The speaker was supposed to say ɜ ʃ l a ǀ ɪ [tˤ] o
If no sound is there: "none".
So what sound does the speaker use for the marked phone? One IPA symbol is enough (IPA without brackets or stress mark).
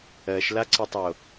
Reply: tˤ